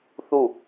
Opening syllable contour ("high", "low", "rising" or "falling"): falling